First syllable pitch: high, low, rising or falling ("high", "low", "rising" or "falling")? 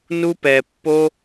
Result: high